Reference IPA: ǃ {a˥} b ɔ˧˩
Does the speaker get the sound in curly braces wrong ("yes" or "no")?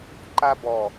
no